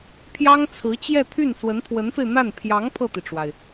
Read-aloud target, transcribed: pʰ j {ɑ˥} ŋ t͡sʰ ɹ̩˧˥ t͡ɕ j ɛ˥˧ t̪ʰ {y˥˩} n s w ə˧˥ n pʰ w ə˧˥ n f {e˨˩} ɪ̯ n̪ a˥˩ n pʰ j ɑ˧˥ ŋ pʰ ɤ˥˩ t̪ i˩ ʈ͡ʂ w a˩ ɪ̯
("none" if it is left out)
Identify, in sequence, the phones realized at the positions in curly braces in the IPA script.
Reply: ɑ˥, y˥˩, e˧

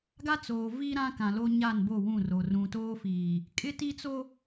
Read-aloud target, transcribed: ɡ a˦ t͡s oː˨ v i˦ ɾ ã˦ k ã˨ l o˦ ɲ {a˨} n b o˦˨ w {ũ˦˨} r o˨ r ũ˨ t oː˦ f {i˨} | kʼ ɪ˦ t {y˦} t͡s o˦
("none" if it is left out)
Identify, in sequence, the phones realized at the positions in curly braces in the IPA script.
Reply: a˦˨, ũ˦˨, iː˨, i˦

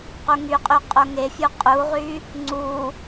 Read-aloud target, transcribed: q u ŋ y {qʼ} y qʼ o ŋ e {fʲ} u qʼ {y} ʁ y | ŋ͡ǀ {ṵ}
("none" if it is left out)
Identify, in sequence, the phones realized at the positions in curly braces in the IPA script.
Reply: qʼ, fʲ, u, u

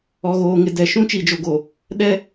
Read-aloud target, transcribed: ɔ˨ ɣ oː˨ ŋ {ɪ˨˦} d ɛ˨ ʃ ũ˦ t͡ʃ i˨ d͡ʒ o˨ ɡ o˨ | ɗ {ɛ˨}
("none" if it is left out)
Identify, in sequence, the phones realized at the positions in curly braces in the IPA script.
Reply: ɪ˨, ɛ˦

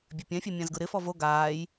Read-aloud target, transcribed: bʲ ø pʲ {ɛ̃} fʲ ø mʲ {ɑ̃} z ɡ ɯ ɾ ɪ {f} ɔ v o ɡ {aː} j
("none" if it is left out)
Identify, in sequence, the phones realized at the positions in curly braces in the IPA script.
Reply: ɛ̃, ã, f, aː

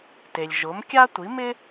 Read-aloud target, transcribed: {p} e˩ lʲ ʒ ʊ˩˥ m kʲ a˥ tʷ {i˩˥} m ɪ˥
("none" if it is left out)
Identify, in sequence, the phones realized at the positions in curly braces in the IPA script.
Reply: t, i˩˥

